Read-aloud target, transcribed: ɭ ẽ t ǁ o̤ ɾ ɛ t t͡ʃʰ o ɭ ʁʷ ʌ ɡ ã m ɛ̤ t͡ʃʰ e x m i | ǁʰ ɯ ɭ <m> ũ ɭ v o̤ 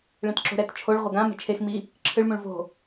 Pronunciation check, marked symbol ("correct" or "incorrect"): correct